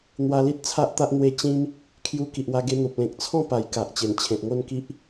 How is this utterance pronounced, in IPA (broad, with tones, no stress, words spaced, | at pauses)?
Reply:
n̪wa˧li˦t̚t͡sʰa˦ʔt̪a˦ʔ n̪we˧t͡ɕĩ˧m | kʰju˧ ki˨ʔwa˧ɡe˧n̪o˨p̚ lẽ˨k̚t͡sʰɔ̃˥˧ pa˨˩jka˨ʔ t͡ɕe˨˩nt͡ɕʰẽ˨t̚ŋo˥˧nki˦ʔ